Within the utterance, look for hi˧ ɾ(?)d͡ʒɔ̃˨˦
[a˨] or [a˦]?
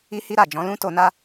a˨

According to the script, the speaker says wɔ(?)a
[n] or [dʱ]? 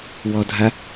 dʱ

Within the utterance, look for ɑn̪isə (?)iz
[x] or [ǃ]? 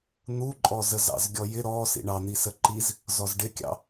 ǃ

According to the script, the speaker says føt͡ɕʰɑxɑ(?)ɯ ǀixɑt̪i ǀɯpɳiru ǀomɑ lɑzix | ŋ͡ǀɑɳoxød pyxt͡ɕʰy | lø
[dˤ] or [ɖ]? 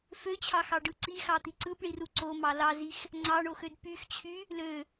ɖ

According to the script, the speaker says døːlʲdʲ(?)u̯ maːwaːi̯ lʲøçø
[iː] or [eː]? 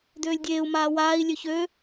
eː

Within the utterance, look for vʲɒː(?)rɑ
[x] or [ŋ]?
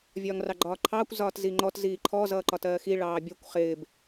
ŋ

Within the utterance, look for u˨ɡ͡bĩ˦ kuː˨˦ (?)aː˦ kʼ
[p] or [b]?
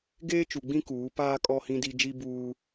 p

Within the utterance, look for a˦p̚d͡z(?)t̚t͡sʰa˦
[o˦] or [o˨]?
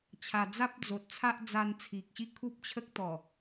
o˨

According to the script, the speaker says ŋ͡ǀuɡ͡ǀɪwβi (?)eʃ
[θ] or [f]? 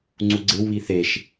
θ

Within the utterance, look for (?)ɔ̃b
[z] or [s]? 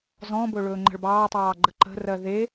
z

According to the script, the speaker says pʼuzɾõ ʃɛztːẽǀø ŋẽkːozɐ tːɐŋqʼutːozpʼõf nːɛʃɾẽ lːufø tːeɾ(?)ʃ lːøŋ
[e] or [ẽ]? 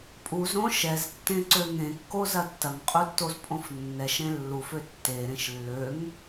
ẽ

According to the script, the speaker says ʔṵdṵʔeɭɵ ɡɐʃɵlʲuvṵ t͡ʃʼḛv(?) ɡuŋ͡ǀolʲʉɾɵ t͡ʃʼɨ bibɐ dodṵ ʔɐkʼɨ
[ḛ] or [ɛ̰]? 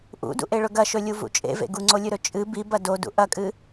ḛ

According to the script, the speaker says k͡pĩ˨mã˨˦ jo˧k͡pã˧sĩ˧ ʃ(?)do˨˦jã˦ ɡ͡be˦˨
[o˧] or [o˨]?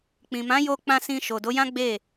o˨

